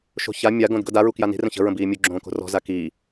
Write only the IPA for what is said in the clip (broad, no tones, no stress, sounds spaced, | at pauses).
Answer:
ʃ o̤ ç a mʲ a ɡ õ d ɡ ɤ d a ɹ u k j a n i̤ r ə̃ ç ə̤ ɹ ə̃ b iː mʲ u ɡ͡ǁ õː k o̤ r ɔ̤ z a k i